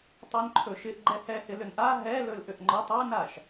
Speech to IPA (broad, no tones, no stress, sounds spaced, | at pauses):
tˤ ɵ n ǃʰ ɵ ʃ ɪ ʔ ɡ͡ǃ ɛ h ɛ h ɪ l ʏ n ʔ a ɦ ɛ l ɵ l ʔ ʏ ʔ ŋ͡ǃ ɒ tˤ a n a ʃ